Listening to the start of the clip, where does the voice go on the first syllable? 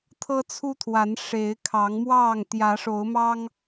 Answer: high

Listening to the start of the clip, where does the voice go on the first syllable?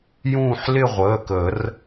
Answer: falling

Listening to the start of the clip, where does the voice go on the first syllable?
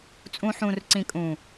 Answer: low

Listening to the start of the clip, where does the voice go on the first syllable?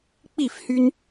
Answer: falling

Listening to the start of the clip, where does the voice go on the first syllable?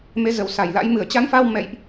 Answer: rising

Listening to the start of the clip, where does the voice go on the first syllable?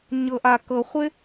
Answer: low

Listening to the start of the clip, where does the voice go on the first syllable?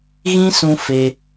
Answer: high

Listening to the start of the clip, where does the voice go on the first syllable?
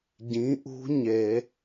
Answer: rising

